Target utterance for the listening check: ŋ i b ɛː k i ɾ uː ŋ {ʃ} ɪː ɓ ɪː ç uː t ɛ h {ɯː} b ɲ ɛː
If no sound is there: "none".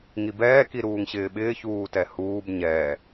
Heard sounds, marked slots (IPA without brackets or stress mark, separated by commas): ɕ, uː